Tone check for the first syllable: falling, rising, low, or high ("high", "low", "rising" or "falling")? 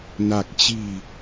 low